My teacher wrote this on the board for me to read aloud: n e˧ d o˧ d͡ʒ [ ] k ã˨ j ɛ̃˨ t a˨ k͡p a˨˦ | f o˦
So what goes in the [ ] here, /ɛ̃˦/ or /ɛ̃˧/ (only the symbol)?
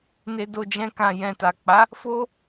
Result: ɛ̃˧